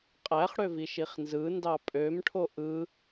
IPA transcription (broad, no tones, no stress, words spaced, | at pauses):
qʼæχɽøviʃ iχnzɯndɑ pʼøm ʈʰoʔɯ